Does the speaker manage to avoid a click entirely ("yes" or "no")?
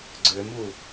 no